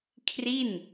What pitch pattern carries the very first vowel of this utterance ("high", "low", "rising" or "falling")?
falling